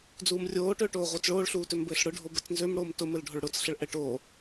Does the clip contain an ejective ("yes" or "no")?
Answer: no